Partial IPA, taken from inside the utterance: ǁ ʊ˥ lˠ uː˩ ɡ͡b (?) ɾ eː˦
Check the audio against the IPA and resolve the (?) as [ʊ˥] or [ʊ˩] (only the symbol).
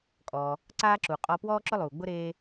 ʊ˥